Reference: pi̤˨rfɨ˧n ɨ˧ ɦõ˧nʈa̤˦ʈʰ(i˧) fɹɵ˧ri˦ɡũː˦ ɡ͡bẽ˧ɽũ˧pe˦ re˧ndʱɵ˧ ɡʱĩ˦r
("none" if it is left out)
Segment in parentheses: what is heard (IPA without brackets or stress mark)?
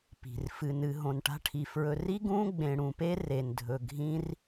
i˧